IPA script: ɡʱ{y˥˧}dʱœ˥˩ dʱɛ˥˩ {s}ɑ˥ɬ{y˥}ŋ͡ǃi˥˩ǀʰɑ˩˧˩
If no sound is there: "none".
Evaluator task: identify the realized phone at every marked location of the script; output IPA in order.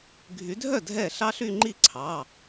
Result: y˨˦, ɬ, y˥˧

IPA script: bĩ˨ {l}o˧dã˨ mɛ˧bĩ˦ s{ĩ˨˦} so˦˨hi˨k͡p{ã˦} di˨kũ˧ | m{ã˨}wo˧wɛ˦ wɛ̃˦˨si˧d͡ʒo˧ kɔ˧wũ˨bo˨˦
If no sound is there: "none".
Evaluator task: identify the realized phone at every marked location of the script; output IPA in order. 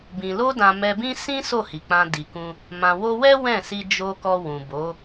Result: l, ĩ˦, ã˧, ã˨

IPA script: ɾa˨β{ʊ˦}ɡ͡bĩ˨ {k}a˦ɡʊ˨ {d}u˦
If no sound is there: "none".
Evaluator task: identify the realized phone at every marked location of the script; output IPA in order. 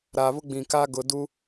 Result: ʊ˦, k, d

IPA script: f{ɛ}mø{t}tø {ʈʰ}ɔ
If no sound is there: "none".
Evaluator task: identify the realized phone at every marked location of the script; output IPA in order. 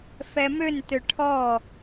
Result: ɛ, n, ʈʰ

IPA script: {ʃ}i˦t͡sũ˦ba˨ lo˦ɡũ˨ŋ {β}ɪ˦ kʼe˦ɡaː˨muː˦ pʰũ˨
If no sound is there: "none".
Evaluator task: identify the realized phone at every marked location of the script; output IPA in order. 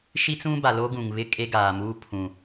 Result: ʃ, β

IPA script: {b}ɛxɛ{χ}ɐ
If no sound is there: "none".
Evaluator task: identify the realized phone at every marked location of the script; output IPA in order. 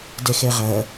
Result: d, ʁ

